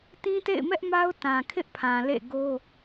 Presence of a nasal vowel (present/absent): present